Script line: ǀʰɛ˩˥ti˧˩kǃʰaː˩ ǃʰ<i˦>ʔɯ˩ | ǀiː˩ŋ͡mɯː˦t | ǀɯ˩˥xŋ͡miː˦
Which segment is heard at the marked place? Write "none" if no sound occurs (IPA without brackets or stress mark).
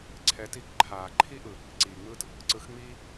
i˦